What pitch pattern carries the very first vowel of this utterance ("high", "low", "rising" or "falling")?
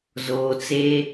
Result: low